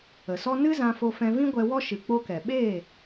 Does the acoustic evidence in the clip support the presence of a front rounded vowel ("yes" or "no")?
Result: no